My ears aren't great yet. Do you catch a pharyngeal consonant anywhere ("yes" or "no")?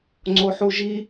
yes